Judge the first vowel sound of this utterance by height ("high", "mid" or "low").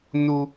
high